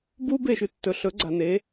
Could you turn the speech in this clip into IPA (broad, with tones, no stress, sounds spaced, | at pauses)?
b u˦ b e˦˨ ʃ ʉ˧ tː ɵ˨ ɬ ɵ˨˦ ɡ͡ǀ a˨ n e˨˦